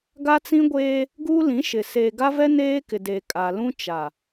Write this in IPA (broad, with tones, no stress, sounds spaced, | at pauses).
ɡ a˦ t͡s ĩ˦ ɡʷ eː˦ | ɡ u˦ l ĩ˨˦ ʃ ɪ˨ s eː˨ ɡ a˦ v ɛ˦ n eː˦ k ɪ˨ d e˨ kʼ a˨ l ũ˦ t͡ʃ a˨